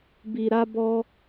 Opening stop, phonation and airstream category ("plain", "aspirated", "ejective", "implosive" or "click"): plain